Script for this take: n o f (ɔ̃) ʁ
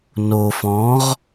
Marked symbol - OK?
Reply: yes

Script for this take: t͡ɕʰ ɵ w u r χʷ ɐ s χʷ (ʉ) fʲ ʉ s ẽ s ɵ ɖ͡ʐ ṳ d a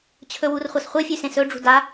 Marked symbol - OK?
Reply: no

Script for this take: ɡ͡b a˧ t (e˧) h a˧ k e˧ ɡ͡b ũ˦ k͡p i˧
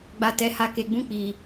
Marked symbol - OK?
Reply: no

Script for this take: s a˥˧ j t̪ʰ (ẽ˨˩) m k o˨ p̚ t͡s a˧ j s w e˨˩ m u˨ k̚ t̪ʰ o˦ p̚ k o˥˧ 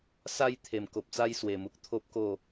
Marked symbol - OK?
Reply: no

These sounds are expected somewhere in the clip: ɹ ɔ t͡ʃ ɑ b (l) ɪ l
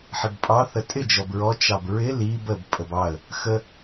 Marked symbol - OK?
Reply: no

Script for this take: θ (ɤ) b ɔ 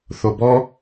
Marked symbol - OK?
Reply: no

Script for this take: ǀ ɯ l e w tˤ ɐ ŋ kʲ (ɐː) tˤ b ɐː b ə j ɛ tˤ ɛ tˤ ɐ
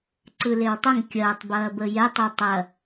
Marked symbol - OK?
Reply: yes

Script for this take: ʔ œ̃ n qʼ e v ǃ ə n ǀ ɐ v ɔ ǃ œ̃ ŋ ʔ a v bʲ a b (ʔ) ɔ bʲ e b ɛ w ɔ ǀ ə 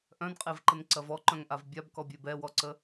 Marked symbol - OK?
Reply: no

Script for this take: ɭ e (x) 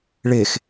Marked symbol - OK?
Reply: yes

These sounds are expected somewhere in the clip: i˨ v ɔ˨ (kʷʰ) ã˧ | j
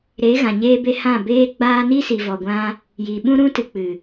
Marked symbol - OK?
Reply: no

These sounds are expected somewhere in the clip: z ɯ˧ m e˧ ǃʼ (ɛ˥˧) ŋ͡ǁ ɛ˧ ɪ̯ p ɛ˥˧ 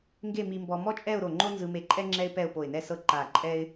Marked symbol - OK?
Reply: no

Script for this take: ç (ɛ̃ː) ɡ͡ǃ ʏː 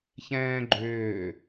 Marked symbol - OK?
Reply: yes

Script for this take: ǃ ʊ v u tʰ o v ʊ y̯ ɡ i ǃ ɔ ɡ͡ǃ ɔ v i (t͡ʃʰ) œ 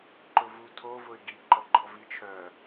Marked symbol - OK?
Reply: yes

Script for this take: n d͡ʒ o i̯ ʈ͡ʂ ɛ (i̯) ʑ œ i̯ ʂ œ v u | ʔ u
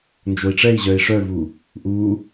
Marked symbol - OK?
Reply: yes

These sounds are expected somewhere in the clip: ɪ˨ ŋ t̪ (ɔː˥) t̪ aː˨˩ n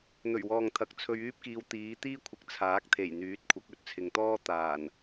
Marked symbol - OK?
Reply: yes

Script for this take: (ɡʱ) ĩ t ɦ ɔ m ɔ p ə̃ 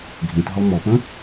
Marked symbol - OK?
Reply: yes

